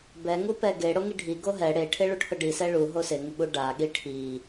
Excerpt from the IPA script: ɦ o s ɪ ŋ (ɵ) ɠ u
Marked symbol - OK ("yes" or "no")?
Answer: no